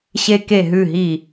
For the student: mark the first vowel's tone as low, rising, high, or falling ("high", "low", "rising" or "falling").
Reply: falling